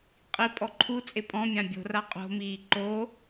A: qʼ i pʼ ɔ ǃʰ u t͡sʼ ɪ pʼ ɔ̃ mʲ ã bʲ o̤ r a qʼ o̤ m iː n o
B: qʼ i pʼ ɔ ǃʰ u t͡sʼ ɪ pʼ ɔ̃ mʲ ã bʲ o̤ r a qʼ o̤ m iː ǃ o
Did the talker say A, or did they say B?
B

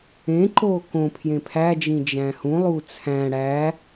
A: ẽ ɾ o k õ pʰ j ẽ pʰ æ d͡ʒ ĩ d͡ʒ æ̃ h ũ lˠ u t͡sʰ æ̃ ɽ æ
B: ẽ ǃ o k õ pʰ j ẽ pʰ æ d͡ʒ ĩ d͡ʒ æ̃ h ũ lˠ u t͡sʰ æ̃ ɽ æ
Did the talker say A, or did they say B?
B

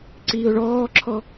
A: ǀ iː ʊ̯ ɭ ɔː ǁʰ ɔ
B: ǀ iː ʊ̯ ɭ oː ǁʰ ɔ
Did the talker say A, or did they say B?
A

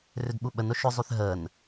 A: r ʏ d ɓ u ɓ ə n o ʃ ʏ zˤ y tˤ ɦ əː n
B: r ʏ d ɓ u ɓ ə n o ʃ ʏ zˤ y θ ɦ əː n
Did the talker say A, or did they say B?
B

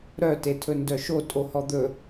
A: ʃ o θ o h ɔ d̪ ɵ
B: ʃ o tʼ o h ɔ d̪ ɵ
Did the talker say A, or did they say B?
B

